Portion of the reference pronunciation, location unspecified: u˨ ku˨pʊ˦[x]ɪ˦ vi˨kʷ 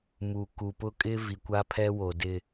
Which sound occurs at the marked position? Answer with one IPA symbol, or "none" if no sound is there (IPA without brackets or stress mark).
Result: kʼ